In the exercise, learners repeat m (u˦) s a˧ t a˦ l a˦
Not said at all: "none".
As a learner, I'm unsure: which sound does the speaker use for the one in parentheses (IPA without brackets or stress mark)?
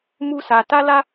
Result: u˦